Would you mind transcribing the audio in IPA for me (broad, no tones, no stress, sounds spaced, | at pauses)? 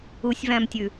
u sʲ v æ̃ m tʲ ʉ